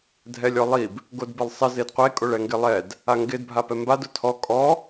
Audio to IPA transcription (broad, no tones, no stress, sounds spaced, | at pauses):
dʱ ɛ lʲ ɔ lˠ i b | ɡ o d b ɪ lˠ sˤ ɪ z e d qʷ e kʼ o ɭ ɛ ŋ ɡ ɪ lˠ ɛ d | a ŋ ɡ ɪ d bʱ a p ɛ m b a d ʊ tʰ ɔ kʼ ɔ